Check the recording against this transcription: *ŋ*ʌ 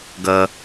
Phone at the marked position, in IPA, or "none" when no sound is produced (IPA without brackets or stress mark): ɡ